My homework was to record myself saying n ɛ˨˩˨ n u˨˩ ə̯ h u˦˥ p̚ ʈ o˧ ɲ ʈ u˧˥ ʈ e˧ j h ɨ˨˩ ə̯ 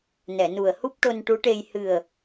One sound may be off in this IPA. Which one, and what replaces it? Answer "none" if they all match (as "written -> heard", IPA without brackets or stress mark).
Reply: ɲ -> n